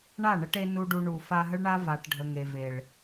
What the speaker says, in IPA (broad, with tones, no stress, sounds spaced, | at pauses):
ɳ a˦˨ ɳ ə˧ ʈ e˧ n u˧ ɖ u˧ ɳ u˨ f a˧ ɦ ə˦ ɭ ɳ a˦ v a˨ ʈ ɖʱ ə˨ ŋ e˨ v e˨ ɭ